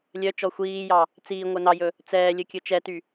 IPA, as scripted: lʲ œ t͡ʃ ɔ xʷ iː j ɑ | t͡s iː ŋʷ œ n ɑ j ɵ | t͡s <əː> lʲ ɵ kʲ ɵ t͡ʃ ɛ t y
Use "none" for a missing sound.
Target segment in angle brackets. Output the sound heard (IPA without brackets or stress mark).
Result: ɛː